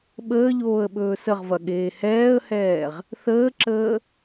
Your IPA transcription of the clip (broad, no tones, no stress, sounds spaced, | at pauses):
ɓ əː ʎ oː ə̯ ɓ ɵː s ə ʁ v ɐ ɠ eː h ɛː ə̯ h ɛː ʁ | θ əː ǁ əː